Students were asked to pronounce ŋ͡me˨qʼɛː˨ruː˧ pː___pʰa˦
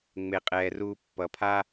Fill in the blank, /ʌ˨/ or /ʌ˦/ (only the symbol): ʌ˨